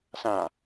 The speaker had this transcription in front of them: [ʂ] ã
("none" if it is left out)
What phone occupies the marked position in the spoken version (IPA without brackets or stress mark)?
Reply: s